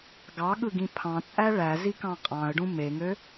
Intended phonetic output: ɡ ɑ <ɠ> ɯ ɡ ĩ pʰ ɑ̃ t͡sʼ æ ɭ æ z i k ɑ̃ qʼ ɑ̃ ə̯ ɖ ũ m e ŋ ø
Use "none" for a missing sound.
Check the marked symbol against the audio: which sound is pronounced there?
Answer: ɠ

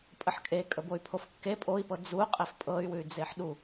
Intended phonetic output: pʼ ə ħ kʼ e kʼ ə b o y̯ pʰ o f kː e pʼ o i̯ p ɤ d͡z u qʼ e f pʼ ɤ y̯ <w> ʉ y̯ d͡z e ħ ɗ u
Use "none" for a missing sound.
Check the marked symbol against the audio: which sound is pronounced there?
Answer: w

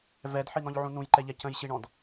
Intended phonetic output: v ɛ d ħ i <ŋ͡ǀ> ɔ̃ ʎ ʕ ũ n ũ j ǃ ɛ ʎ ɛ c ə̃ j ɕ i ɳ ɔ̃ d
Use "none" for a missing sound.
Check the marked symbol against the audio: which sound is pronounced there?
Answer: n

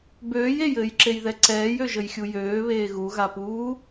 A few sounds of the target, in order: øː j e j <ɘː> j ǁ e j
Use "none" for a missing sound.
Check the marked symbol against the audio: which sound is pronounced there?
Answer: ɘː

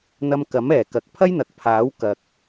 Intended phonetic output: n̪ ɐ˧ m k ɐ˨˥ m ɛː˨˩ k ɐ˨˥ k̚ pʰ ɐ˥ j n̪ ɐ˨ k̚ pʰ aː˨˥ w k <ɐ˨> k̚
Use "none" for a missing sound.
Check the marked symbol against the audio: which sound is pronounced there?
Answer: ɐ˨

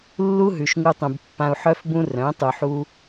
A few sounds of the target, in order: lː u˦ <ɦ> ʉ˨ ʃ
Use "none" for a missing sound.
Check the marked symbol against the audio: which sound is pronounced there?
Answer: ɦ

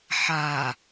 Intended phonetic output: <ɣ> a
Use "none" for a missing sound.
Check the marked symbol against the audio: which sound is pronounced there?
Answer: ħ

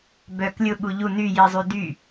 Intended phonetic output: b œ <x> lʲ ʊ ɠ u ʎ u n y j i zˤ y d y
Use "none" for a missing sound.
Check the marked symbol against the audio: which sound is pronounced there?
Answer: k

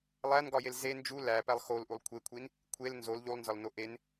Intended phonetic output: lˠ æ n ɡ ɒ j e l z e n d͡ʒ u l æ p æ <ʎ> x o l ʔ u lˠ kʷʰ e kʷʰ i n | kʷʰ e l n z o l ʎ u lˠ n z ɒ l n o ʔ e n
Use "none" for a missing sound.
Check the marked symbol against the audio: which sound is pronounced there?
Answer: lˠ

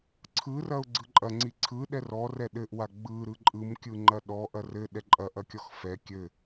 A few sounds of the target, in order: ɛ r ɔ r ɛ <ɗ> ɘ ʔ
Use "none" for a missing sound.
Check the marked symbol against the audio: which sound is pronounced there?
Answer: ɗ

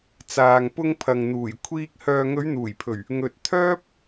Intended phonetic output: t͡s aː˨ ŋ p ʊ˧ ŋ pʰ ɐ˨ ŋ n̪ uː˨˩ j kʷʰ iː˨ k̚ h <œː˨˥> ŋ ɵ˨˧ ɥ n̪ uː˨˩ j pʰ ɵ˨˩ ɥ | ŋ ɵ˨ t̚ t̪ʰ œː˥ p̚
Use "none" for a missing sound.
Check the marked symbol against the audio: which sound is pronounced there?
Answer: œː˨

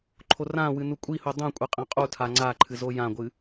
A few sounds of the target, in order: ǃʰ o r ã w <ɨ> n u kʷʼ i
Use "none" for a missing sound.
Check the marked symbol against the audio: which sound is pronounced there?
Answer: ɨ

